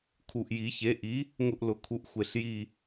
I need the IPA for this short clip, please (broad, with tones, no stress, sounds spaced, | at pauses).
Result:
kʰ u˨˩ ʔ j i˨˩˦ ç e˩˥ ʔ i˩˥ | ŋ ʊ˦˨ ʔ l ʊ˨˩˦ kʰ u˩˥ ʔ xʷ e˨˩ ɬ j i˦˨